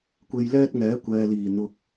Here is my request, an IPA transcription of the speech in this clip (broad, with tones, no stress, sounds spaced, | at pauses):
kʷ e˧ j l ɛː˥ t̚ ŋ ɛː˨˥ kʷ ɛː˨ l iː˨˩ n̪ ʊ˨ k̚